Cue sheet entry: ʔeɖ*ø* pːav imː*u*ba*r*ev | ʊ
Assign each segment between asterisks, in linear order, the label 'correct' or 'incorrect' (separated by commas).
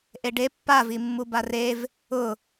incorrect, correct, correct